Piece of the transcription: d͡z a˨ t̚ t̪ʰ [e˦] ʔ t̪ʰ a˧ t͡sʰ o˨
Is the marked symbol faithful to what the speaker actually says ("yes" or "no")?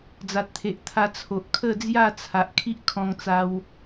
no